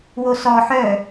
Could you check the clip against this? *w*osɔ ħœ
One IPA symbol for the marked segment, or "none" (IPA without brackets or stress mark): w